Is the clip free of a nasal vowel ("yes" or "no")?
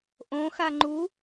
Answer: no